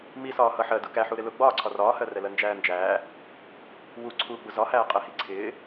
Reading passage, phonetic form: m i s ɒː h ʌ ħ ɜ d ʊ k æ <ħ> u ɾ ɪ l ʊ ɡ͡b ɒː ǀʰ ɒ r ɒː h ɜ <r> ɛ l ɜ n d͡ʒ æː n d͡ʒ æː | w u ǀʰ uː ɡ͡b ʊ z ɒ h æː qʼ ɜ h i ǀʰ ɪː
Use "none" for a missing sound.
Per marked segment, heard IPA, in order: ħ, r

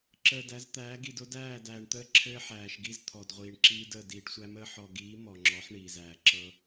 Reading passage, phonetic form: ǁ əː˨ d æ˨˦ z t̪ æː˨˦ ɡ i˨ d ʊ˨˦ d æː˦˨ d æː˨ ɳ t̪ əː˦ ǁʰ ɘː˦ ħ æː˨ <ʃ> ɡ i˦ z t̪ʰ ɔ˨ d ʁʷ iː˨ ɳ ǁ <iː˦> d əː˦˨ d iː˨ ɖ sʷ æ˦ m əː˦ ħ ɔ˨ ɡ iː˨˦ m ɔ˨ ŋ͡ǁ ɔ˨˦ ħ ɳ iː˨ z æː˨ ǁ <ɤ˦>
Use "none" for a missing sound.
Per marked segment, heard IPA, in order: ʃ, iː˦, ɤ˦

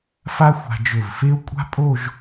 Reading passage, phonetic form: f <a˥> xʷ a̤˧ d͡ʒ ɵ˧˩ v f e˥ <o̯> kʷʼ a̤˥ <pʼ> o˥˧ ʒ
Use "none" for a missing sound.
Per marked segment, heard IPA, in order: a˥, o̯, pʼ

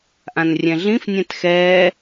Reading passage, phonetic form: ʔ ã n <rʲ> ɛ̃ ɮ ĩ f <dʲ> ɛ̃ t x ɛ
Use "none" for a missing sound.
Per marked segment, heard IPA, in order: rʲ, nʲ

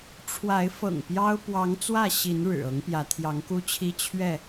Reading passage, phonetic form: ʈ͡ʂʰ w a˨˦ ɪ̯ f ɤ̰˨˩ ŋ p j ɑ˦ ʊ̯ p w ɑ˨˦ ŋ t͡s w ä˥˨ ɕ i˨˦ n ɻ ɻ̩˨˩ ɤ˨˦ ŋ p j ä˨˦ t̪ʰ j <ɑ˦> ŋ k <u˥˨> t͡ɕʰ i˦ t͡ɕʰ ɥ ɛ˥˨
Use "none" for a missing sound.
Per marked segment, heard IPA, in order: ɑ˨˦, u˦

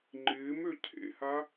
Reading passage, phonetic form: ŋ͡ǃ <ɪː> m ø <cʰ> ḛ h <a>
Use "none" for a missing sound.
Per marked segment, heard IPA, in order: ɪː, cʰ, a

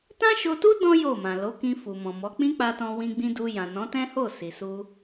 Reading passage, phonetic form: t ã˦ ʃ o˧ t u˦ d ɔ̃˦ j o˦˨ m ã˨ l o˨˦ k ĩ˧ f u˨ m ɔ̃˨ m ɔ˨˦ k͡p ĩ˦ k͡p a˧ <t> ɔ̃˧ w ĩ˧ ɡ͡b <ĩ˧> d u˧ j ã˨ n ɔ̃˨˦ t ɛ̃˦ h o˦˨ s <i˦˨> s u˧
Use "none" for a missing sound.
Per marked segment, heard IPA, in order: t, ĩ˧, i˨

